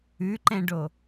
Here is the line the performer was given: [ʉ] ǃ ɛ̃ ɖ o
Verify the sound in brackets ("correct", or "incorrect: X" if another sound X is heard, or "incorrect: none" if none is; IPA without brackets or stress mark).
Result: correct